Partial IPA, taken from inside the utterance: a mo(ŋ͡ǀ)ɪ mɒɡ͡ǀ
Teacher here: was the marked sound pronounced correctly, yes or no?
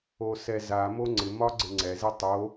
yes